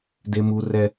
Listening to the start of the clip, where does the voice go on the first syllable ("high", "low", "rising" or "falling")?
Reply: high